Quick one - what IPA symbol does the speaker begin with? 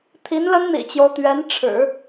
t̪ʰ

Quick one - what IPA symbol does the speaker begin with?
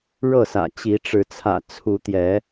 ɻ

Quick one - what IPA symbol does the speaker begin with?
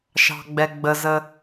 ʃ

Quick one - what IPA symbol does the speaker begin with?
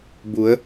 b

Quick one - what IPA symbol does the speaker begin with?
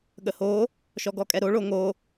ɠ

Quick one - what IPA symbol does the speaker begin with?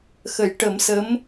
x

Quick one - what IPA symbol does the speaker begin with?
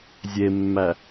zʲ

